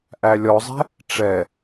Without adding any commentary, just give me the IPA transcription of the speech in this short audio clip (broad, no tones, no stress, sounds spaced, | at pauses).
ʔ æ lʲ ɔ zˤ ɛ̤ | ʈ͡ʂ ɛ